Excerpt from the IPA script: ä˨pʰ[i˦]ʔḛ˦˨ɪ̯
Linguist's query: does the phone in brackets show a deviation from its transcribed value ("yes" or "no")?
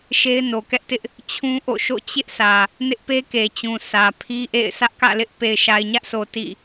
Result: no